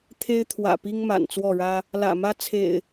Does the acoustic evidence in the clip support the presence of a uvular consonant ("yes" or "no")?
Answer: no